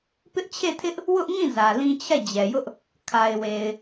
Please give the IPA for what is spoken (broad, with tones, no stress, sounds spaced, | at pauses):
p ɪ˦ ʔ t͡ɕʰ e˦˨ tʰ ɪ˦ ʔ | w ʊ˦ ʔ ŋ ĩ˦˨ z ä˨ l ĩ˦ t͡ɕʰ ɛ˦˨ d͡ʑ ɛ˨ j ʊ˦ ʔ | kʰ a˨ ɪ̯ w e˨ ɪ̯